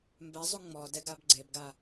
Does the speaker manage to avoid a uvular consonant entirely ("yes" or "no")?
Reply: yes